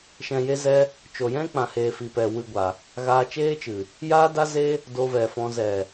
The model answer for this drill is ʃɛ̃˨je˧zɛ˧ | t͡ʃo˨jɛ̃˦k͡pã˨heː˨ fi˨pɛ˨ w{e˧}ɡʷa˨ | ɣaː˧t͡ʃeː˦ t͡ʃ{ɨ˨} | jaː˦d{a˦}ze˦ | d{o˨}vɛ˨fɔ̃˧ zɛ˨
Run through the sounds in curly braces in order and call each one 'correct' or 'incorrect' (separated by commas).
incorrect, correct, correct, incorrect